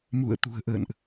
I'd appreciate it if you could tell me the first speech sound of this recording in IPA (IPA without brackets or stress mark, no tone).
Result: m